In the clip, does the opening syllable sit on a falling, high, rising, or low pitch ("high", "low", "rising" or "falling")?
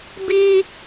high